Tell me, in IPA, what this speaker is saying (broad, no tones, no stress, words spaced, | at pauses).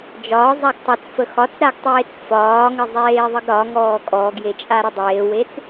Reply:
d͡ʒɒːzˤaɡ tˤɐt͡sfə xɒt͡sɾaɡtˤeːt͡s fɒːŋəzˤeːðˤəɡ ɾɒŋɔː kʼɔːɡjet͡ʃʼaɾə dˤeːwet͡s